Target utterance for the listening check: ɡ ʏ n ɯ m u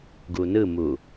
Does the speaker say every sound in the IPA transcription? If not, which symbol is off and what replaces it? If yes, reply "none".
ʏ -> u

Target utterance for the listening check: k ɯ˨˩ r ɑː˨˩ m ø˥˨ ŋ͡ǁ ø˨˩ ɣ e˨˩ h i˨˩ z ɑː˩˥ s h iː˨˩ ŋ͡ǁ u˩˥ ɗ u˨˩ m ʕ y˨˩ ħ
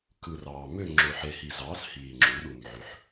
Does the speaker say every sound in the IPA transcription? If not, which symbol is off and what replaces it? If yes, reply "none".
ɣ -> ħ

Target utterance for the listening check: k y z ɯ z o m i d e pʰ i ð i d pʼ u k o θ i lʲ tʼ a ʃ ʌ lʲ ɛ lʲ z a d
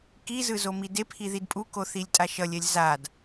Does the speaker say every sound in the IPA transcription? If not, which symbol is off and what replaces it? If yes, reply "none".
y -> i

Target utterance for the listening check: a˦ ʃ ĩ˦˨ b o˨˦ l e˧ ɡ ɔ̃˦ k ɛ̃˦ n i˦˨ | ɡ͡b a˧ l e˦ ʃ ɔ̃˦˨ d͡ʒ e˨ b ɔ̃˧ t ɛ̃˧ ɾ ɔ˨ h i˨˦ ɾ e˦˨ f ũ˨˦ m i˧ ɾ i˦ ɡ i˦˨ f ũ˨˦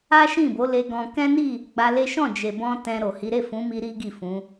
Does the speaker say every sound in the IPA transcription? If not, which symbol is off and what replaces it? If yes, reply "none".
ɔ˨ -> o˨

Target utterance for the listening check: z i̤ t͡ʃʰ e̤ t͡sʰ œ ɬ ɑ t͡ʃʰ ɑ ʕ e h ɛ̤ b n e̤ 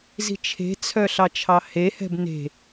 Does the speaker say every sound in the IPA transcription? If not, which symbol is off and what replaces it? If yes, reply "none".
ʕ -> h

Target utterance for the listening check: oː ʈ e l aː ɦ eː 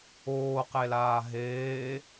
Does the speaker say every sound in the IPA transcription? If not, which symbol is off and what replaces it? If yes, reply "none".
ʈ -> q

